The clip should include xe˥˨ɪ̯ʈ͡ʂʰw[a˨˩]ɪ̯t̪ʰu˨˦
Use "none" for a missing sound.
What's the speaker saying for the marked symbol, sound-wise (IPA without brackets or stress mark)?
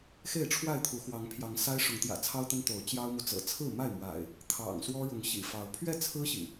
a˥˨